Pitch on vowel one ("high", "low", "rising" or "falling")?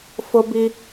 high